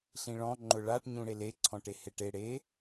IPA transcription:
ɬĩɭɔ̃ ŋ͡ǃʊɭaʈ ɲũɽele ǀʰɔ̃ʈeheʈe ɽe

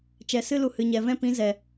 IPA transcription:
t͡ʃɛ˨sɨ˦lu˨ hɨ˨ɲɛ˨ vɛ̃˦pĩ˨˦zɛ˨

